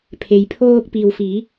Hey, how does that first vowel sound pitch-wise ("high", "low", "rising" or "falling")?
low